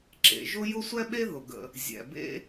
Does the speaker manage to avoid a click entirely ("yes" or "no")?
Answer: no